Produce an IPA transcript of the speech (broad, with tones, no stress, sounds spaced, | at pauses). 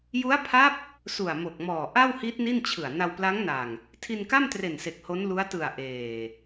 j u˦˥ a̯ pʰ a˦˥ p̚ | s u˨˩ a̯ m o˨˩ k̚ m ɔː˨˩ ʔ a˥˩ w h i˦˥ t̚ n i˥˩ n t͡ɕʰ ɯ˨˩ a̯ n a˧ w p l a˦˥ ŋ n a˨˩ ŋ | tʰ i˧ n k a˥˩ m t r e˨˩ n s e˨˩ k̚ h o˦˥ n l u˦˥ a̯ t ɯ˨˩ a̯ ʔ eː˨˩